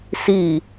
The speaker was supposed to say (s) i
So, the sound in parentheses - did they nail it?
yes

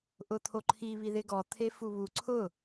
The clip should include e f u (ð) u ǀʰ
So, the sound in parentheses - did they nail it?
no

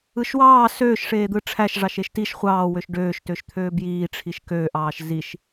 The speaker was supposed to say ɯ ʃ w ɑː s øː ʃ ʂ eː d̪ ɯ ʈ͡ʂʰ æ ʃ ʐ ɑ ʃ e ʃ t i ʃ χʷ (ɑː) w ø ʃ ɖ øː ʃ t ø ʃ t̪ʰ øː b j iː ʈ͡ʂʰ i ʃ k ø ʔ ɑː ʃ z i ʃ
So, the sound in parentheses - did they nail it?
yes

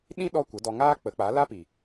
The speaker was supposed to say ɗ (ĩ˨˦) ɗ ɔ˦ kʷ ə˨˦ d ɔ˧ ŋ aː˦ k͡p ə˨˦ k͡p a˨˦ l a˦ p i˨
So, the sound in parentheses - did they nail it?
no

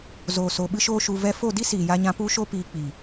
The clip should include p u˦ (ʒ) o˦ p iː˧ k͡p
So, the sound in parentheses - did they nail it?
no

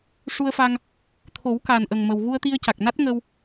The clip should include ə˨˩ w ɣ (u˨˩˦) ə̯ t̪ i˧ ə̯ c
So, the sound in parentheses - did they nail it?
no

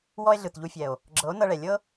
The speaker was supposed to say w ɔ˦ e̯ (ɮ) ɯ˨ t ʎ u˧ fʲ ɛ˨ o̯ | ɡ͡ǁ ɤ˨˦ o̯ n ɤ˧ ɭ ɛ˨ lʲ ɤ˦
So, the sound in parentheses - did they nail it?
yes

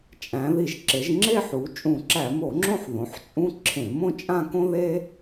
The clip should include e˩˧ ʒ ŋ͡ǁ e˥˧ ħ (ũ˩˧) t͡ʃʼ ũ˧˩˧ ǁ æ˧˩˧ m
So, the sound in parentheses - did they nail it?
no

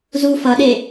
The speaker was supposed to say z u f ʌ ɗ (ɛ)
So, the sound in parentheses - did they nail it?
no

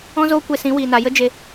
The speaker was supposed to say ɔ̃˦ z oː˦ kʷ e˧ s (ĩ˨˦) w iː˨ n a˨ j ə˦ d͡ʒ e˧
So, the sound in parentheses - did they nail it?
yes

